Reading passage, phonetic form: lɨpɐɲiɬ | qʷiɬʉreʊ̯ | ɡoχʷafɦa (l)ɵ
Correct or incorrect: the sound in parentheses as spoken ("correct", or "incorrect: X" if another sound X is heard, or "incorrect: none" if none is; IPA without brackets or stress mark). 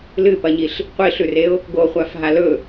correct